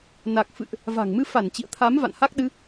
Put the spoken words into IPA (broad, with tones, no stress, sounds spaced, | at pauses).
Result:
n a˨˩ k̚ f ɨ̰˧˨ ʔ | v a̤˨˩ ŋ m ɨ˧ f a˧˩ n t͡ɕ ḭ˧˨ ə̯ t̪ʰ a˨˦ m v a̰˧˨ n h a˦˥ k̚ ɗ ɨ˨˦